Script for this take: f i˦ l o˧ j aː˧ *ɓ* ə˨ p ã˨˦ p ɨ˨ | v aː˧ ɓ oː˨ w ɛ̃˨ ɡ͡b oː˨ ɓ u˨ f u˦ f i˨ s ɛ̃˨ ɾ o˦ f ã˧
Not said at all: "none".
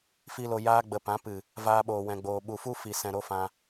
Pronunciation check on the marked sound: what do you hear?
ɡ͡b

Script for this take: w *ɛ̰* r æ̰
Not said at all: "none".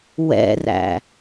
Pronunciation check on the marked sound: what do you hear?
ɛ̰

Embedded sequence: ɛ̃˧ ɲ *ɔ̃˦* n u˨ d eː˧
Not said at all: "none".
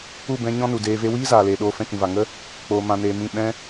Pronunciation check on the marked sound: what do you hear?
ɔ̃˦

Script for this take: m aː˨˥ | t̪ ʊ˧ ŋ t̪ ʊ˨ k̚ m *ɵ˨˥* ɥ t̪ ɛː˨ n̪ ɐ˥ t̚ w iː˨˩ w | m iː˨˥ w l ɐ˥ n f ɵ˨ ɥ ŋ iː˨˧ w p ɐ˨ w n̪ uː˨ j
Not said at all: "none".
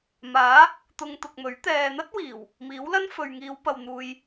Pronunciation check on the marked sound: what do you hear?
ɵ˨˥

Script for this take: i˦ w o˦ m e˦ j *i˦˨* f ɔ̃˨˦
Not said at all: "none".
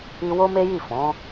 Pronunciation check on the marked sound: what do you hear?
i˦˨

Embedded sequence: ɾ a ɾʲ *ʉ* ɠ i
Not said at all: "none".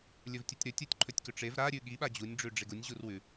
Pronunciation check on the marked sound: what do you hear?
ʉ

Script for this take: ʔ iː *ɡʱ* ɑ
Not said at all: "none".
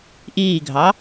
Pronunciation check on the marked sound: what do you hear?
ɡʱ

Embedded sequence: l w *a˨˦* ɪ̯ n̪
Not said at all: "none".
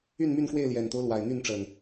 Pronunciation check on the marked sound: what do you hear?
a˨˩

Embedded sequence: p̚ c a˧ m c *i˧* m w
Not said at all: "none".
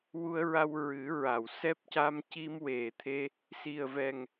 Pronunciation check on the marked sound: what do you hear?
i˧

